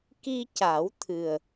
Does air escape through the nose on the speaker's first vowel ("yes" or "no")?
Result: no